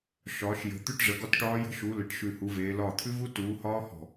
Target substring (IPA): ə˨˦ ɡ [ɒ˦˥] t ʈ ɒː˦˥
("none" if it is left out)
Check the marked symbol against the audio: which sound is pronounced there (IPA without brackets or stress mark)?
ɒ˦˥